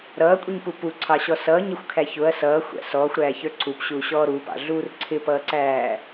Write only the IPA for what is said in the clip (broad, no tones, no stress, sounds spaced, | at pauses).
ɾ ʌː kʷʼ i ɲ p u p u ǀʰ ɑ ɕ ɔ s ʌː ɲ ɪ xʷ kʰ æ ç ʊ ɐ̯ s ʌː xʷ æ̰ s ɔː xʷ ɾ æː ç ə˞ ǀʰ u p ɕ uː ɕ ɔː ɾ u p ɑ̰ ɮ uː r ǀʰ ɪ p ʌː ǀ æː